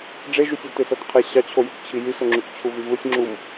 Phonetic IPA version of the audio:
ɖ͡ʐ e ʒ y sʲ ɑ t e s æ t qʰ e ɕ ɑ t͡ɕʰ o j u k t͡ɕʰ i j y s o ŋ͡ǁ y k t͡ɕʰ u v y v ɯ sʲ ŋ͡ǁ u m

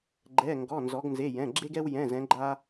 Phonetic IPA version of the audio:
ɡ͡ǃ ɛ˩˧˩ ŋ ɡ ɔ˩˧˩ n z ɔ˩˧ ɡ n z e˩˧˩ j ɛ̃˩˧˩ ɡ͡ǁ e˧ ɡ ɛ˧ w j ɛ̃˩˧˩ z ɛ̃˩˧ ɡ͡ǃ a˧

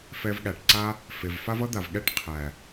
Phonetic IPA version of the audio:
f ɛ˧ v ɠ æ˨ ʈ ǀ a˦ | f e˨ v f a˦ v ʌ˦ d̪ a˨ v ɠ ɛ˦˨ ʈ qʰ æ˨

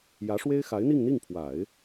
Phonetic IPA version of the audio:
j ä˧˥ ʂ w e˥ ɪ̯ x a˧˥ ɪ̯ n̪ i˥˧ ŋ n̪ i˥˩ ŋ pʰ w a˨˩˦ ɪ̯

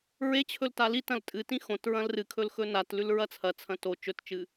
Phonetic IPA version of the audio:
ɹ e t͡ɕʰ ɵ l t a l i t ɐ̃ l tʼ ɨ t ĩ x õ t ɹ ɐ̃ l r ɨ kʰ ɵ l x ɵ n a t l ʉ l ɹ ɐ t͡sʰ ɐ t͡sʰ ɐ̃ t o t͡ʃ ɵ t t͡ʃ ɨ

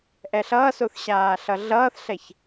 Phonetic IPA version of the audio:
ʔ ɛ ɬ ʌː s o θ ɕ aː ɬ ʌ ɮ ʌː θ ɬ ɛ ç

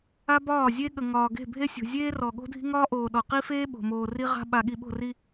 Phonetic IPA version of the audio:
a˦ b ɒː˦˨ zʲ e˦ ɠ ə˨ ŋ ɒː˨ ɡ e̤˦˨ bʱ e˦ sʲ o̤˨ zʲ eː˦ r ɔ˨ ɠ o̤˦ dʱ i̤˦ ŋ ɒː˦ ʔ oː˨ ɗ ɔ˨ q i˦ f eː˦ ɓ o̤˨ m oː˨ r i˦ ʁ a̤˦ ɓ a˨ ɠ i˨ ɓ o̤˦˨ r i˦

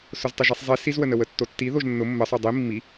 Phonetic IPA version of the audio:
s ʊ z tˤ ʊ ʒ i sˤ zˤ i s i z w ə n ə w ə tː o tː i ð o ʒ nː ʊ mː ə sˤ o dˤ i mː i

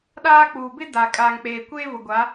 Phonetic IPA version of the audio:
ɗ aː˦ k͡p uː˨ b ɪ˦ d a˨ kʼ aː˨ ŋ k͡p eː˨ kʷ eː˦ v ʊ˨ ɡʷ a˨˦

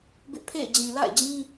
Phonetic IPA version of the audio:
b ɪ˦ ʔ pʰ ḛ˦˨ ɪ̯ d͡ʑ ĩ˨ l a̰˦˨ ɪ̯ d͡ʑ ĩ˦

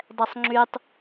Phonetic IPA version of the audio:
dˤ ɛ sˤ ŋ͡ǁ y tˤ

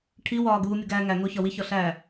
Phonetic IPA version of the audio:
ʈʰ i w ɒː ɡ uː mʲ o ɡ æː ŋ æ ŋ o ç ɒ w i ç ɒ ɬ æː

